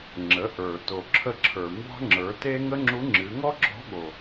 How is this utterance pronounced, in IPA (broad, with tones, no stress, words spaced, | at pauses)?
ŋ͡ǁə˩˧ʔə˞˩ to˩ǁʰə˧ǁʰə˞˩ mbɑ̤˥ŋ͡ǁə˞˩˧te˥ ŋə˥ŋ͡ǁu˧˥ŋ͡ǁɨ˩˧ ŋɔ˥ɡ͡ǁɔ̤˧˥ɠo˩